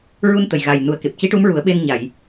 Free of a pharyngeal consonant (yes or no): yes